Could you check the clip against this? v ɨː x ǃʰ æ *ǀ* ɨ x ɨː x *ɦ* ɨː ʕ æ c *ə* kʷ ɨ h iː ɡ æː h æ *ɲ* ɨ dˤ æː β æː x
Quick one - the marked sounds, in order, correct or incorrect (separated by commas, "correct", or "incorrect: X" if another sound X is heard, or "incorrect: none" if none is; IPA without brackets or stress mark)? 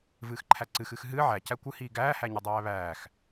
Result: correct, correct, incorrect: æ, correct